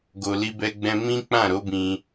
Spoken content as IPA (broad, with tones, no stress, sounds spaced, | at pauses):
ɡ o˧ l i˦ b ɛ˦ ɡ͡b ɛ̃˦ m ĩ˦ k͡p ã˦˨ ɾ o˨˦ b ĩ˧